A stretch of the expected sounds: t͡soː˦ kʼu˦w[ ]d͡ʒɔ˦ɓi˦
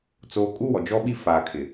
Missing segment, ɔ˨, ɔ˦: ɔ˨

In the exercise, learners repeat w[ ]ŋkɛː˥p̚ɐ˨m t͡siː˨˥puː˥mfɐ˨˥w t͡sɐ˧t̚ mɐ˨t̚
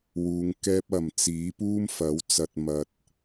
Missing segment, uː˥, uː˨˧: uː˨˧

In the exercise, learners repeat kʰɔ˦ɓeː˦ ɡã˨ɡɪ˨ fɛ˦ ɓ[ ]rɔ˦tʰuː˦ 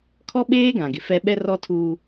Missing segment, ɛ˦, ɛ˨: ɛ˦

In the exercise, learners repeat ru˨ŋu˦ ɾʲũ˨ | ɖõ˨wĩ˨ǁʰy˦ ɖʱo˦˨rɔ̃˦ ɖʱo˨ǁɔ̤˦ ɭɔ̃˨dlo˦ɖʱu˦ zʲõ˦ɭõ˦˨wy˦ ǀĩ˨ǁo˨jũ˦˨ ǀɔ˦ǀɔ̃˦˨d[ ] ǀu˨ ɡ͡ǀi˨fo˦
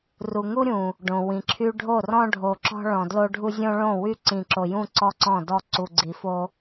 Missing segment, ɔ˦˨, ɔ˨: ɔ˦˨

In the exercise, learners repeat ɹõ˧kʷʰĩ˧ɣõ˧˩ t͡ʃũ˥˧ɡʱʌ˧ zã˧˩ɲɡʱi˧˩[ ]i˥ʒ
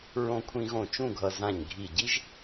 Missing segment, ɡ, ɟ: ɟ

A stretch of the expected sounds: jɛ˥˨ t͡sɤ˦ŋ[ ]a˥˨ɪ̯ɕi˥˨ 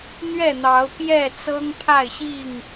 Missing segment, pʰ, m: pʰ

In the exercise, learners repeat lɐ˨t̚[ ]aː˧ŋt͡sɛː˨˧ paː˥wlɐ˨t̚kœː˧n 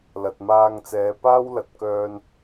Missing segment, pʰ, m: m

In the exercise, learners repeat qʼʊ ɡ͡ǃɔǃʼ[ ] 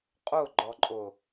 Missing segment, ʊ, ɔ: ʊ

